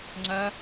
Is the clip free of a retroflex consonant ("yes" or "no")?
yes